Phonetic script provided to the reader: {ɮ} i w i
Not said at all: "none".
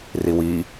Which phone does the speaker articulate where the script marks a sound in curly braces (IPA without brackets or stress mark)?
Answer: r